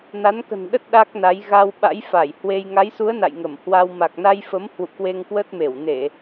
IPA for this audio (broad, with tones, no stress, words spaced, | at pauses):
na˨˦nkə̤˨˩nɗə˦˥t̚ ɗa˦˥k̚na˨˦j ɣa˧w ɓa̰˧˥jfa˧˩jhwe˧j ŋa˨˦jsu˨˦ə̯ na̰˧˨jŋə˧˩m hwa˧w ma˨˩k̚na˧jfə˨˦m hwṵ˧˨kwe˧ŋkwə˦˥t̚me˧˩w ne˧˩˨